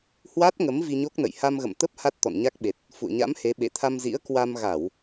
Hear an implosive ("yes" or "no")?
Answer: yes